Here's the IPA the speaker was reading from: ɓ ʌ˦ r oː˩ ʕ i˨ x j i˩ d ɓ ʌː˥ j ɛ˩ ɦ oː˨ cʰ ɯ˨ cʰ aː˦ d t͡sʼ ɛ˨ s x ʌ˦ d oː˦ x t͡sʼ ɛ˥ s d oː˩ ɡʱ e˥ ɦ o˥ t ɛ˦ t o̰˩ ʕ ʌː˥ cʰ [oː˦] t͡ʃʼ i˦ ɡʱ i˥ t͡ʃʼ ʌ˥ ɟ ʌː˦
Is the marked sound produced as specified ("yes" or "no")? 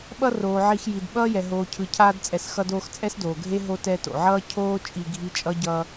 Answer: no